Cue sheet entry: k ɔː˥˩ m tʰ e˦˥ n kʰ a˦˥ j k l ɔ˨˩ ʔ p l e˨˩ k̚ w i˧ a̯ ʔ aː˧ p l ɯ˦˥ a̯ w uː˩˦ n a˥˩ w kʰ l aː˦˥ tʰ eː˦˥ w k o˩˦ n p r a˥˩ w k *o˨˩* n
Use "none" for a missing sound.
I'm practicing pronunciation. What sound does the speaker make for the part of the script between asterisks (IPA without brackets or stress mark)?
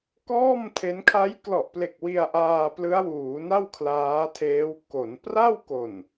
o˨˩